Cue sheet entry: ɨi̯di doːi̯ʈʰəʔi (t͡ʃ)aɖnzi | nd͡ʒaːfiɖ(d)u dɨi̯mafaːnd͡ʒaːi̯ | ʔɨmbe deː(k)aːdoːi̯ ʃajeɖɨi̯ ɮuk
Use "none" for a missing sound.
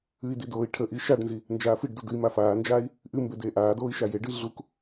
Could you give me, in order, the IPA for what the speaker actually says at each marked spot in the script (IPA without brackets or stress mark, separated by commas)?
ʃ, d, ʔ